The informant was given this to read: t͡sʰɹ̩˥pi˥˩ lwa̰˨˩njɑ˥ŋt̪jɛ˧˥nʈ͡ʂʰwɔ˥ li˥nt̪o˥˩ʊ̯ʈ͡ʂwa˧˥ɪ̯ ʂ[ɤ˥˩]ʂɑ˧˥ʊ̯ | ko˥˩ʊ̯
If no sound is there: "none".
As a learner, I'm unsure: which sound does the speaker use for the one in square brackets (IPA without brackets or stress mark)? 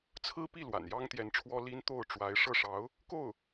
ɤ˥˩